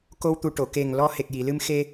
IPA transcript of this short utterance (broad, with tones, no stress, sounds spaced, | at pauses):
k o˧ w t̪ u˨˩ ʈ o˨˩˨ k e˨˩ ŋ l ɔ˧ h e˨˩ k̚ j i˨˩˨ l ɨ˧ m x e˧